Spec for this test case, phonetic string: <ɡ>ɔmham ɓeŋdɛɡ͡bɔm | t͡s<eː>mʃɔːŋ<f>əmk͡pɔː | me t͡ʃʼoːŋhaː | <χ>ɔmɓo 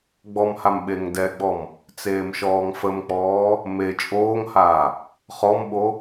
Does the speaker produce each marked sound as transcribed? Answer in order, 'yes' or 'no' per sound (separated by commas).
no, yes, yes, yes